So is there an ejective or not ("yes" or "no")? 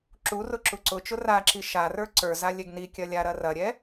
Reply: no